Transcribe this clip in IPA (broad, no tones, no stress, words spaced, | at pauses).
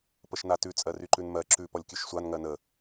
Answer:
pəʃnatʉ t͡sʼɜryǃʉnmɜ ǁʉ pɔlʲkʲʉʃsʷan ŋɜnə